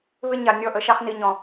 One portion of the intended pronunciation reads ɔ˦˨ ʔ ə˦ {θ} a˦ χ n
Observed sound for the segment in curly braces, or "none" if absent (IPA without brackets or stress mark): ʃ